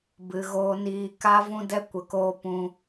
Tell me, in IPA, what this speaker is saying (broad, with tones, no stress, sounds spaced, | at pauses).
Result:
b ɨ˧ ɣ oː˦ n iː˦ k a˦ v ũ˦ d ɛ˦ kʷ ə˧ k oː˦ p ũ˧